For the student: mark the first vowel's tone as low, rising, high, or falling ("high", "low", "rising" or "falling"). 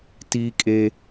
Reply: high